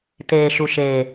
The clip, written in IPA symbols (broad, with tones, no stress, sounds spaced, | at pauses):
t eː˨ ʃ u˨ ʃ eː˨